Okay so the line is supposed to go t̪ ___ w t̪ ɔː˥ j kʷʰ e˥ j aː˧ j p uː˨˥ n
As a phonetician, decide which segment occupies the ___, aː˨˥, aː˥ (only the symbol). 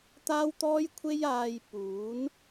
aː˥